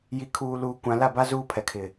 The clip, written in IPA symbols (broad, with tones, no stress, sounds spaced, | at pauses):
j i˨ kʰ uː˨ l uː˨ kʷ ã˨ l a˦˨ b a˦ z uː˦ pʰ ɛ˨ kʰ ɪ˨